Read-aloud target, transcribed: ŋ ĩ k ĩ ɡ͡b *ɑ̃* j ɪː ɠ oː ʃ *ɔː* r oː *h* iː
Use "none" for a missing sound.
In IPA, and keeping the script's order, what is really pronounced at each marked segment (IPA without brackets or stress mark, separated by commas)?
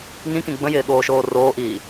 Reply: ə̃, oː, ʔ